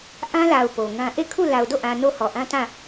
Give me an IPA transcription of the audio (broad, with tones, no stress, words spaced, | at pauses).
ʔã˦la˨ʊ̯ po˨ŋã˦ ʔe˦˨kʰu˦˨ la˨ʊ̯do˦˨ʔã˨ no˦˨hɔ˨ʔã˦tã˦˨